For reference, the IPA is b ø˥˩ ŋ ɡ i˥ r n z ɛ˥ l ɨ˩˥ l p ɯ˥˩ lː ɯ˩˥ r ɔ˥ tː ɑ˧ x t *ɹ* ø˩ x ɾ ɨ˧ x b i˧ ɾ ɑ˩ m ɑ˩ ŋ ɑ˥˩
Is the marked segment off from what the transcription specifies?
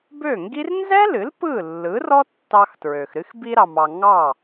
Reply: no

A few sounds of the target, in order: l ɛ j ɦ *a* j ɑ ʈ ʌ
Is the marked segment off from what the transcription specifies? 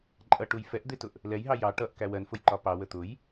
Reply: yes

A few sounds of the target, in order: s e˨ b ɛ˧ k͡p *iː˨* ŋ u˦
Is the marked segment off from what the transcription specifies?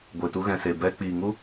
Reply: no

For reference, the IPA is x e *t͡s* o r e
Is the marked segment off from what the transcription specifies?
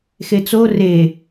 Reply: no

